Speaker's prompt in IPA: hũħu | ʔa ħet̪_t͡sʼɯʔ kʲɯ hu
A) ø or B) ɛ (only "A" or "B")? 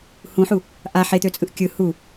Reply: A